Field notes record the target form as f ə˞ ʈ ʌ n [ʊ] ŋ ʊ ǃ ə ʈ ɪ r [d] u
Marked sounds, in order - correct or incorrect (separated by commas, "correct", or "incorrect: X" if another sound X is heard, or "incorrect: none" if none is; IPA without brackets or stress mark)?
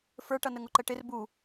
incorrect: ə, incorrect: b